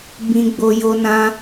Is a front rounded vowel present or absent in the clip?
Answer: absent